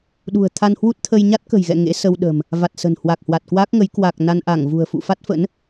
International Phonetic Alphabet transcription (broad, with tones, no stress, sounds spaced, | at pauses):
ɗ ṳ˨˩ ə̯ t̪ʰ a˧ n h w u˦˥ t̚ t̪ʰ ə˧ j ɲ a˦˥ t̚ k ə̤˨˩ j ɣ ɛ̰˧˨ ŋ ḛ˧˥ s ə˧ w ɗ ə̤˨˩ m | v a˨˩ t̚ s ə̤˨˩ n h w a˨˩ k̚ h w a˨˩ t̚ k w aː˦˥ k̚ ŋ ə˨˦ j k w a˨˩ k̚ n a˧ n ʔ a˧˩ ŋ v ṳ˨˩ ə̯ f ṵ˧˨ f a˦˥ t̚ f ə̰˧˥ n